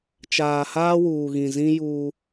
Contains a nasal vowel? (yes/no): yes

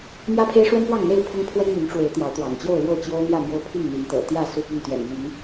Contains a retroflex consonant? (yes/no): yes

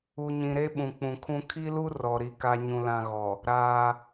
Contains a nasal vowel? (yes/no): yes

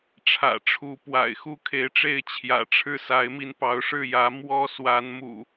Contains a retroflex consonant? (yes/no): yes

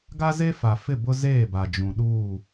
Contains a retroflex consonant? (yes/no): no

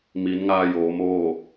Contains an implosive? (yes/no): no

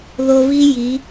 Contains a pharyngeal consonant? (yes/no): no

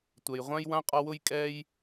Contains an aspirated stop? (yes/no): no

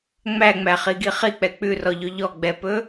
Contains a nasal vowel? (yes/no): no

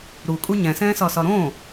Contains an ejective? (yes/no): yes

